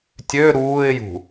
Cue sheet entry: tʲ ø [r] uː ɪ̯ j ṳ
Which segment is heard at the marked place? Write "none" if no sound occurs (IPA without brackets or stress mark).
ɾ